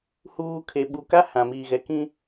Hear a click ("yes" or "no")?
no